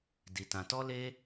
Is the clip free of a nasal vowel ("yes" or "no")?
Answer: no